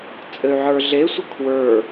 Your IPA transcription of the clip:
t͡sʼ ɘ y̯ ʕ ə˞ ɮ e sʷ ə kʰ w ə˞

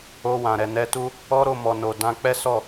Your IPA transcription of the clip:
o˧ w ã˨ ɾ ɛ˨ n ɛ˧ t u˦ | ɔ˦ ɾ o˦˨ m ɔ˨ n o˨ d ã˧ k͡p ɛ˦ s ɔ˦˨

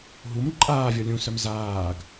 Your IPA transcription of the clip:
ɦ u m ǃʼ aː vʲ ɔ lʲ ũ s œ m z aː ɡ

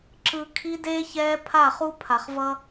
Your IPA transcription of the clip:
ǁ ɯ˨ kʰ i˦ d eː˦ ç ɛː˦ pʰ a˦˨ χ u˦ pʰ a˨ χ v ʌ˦

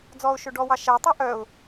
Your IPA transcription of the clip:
d͡z ɔ ʊ̯ ʃ ɵ ɖ ɔ w ɑ ʃ æ tˤ œ ʔ œ ʊ̯

